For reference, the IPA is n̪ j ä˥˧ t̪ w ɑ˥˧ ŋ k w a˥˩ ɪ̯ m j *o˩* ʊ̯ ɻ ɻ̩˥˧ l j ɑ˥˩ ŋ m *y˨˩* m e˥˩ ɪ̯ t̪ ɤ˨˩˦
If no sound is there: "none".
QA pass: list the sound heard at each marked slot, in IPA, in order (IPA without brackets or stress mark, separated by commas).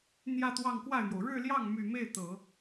o˩, y˨˩